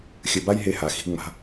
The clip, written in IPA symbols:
xʲ ɘ˧ b a˦ j ɦ e˦ h a˧ x i̤˧ ŋ͡m a̤˧

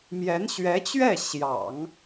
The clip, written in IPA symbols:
m j ɛ˧˥ n ɕ ɥ ɛ˧˥ t͡ɕ ɥ ɛ˥˩ ɕ j ɑ̰˨˩˦ ŋ

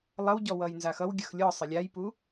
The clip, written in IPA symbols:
lˠ ʌ w ɟ ɔ w ʌ j n z a x ʌ w ɡʲ ʌ x lʲ ɔ sˤ ɘ lʲ a j p u

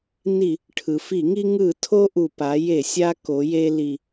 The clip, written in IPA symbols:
n i˧˩˧ | ʈʰ ɯ˩ f i˧˩˧ ŋ i˧ ŋ ɯ˧˩˧ tʰ o˧ ʔ u˩ p a˩˧ j e˧˩˧ sʲ a˧ k o˩˧ j e˧ l i˩

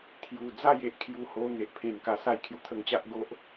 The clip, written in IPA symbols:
t̪ʰ j u˨˩ d͡z a˥˧ j e˨ ʔ kʰ j u˧ h o˧ n̪ e˨ ʔ pʰ ẽ˨˩ n k a˨˩ s a˥˧ j kʰ j u˨˩ t̪ʰ ə˧ ŋ t͡ɕ a˦ ʔ ɡ o˦ ʔ

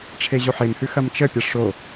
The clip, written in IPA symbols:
ʈ͡ʂʰ e ʑ o ħ e m h ʉ x ɐ m t͡ʃ ə pʲ ɐ ʂ o

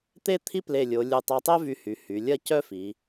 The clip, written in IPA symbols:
t̪ e˥˧ t̪ʰ i˥ p l e˧˩ lʲ o˩˧ lʲ u˧˩ tˤ a˧ tˤ ɛ˥ v y˧ h y˩˧ h y˩˧ lʲ ɐ˥˧ c œ˥ f i˩˧

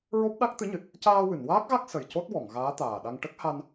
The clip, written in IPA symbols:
ɹ o˦˥ p̚ ɗ a˦˥ k̚ t̪ ɨ˧˥ ɲ ɨ˨˩ t̚ | c aː˧ w ɨ˨˩˨ n w aː˦˥ k̚ ɣ a˦˥ k̚ s ə˨˩ j c o˦˥ t̚ w ɔ˨˩˨ ŋ ɣ aː˧˥ t̪ aː˨˩ ɗ a˧ ŋ ʈ ə˦˥ k̚ h a˧ n

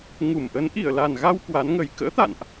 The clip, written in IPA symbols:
ŋ u˧˩ m ʔ ə˨˦ n ʔ i˧˩ ə̯ l a˨˩ n ɣ a˧ w k w a˨˦ n ŋ ə˨˩ j k ə̰ː˧˥ t̪ a̰˧˨ n ʔ

